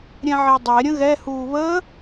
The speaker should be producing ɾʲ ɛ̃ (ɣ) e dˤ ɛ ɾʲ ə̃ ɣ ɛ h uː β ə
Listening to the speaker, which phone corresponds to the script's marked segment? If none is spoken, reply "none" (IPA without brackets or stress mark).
ʕ